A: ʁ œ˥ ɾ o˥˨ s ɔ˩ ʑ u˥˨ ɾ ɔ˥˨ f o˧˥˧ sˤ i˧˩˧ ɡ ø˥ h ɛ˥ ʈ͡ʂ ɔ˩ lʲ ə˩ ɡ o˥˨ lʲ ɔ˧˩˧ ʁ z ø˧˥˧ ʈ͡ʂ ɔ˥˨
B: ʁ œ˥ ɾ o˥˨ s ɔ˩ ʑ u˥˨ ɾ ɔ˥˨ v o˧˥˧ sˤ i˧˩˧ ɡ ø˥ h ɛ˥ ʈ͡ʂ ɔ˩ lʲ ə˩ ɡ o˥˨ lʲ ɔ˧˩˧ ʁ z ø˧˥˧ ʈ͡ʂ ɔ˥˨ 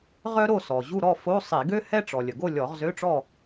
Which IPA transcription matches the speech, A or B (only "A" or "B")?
A